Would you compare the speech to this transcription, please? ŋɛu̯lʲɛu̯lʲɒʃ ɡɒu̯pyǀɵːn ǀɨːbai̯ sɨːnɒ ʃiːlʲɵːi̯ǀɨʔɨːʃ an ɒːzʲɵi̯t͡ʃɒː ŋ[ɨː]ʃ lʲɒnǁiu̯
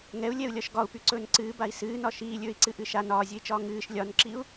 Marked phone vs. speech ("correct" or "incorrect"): correct